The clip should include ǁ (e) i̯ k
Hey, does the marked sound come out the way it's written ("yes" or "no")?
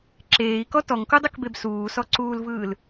no